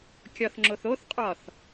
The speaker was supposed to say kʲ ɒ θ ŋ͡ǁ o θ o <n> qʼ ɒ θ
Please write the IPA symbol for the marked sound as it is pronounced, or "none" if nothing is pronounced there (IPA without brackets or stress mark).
θ